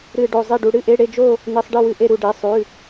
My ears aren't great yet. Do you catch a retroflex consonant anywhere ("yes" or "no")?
yes